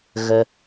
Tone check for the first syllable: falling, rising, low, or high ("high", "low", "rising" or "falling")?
high